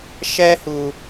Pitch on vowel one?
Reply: high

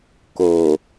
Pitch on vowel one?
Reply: low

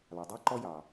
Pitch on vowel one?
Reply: low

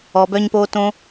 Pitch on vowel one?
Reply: low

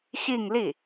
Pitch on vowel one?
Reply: falling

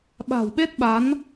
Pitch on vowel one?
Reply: low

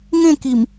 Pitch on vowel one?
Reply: falling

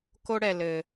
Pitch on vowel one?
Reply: high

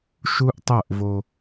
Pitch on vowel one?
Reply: high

